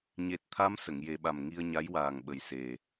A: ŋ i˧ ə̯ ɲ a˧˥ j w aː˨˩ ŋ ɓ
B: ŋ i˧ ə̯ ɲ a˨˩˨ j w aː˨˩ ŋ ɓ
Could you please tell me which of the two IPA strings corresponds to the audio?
A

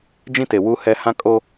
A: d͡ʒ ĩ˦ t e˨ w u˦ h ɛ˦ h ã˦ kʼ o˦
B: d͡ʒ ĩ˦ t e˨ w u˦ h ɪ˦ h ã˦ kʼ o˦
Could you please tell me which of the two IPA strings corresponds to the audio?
A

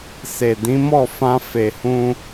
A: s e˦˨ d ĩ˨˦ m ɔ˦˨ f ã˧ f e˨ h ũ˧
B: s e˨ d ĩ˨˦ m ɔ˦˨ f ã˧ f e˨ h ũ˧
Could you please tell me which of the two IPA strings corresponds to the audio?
B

